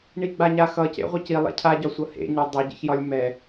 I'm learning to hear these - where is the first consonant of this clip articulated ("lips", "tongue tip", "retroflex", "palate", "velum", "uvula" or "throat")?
retroflex